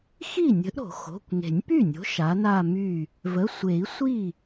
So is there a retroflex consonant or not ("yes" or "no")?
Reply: no